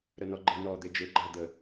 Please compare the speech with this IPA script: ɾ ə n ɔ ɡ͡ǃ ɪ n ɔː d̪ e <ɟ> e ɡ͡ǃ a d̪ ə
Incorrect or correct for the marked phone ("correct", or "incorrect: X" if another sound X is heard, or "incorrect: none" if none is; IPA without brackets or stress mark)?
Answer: incorrect: d͡ʒ